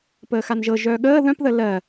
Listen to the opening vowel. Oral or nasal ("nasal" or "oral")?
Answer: oral